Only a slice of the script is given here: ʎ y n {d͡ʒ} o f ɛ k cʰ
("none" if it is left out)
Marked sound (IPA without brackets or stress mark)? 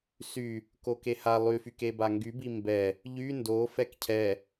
d